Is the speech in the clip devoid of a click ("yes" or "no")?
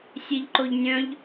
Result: no